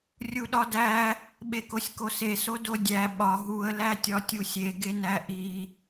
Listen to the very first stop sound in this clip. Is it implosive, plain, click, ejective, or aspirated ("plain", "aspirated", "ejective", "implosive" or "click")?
implosive